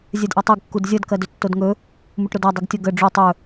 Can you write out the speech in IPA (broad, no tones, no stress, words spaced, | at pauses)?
zʲɜdʔɜtˤeɡ kːudzʲʌd kɜdɵtːodŋɵ | muʈɾodɜ dˤuɡtʲʌ ɡə ɖ͡ʐu tˤɵ